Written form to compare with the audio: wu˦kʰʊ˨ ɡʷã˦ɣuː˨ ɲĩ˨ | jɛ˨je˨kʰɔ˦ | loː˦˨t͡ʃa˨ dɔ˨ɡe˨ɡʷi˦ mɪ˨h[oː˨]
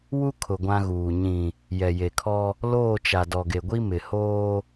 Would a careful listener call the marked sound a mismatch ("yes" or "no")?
yes